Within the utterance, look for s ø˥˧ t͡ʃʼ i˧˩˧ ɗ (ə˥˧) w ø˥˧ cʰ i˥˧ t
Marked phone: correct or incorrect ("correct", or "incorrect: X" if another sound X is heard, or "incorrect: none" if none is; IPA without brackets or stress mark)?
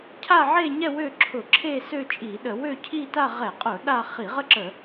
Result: incorrect: ə˧˩˧